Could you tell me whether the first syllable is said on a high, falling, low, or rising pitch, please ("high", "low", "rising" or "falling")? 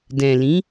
low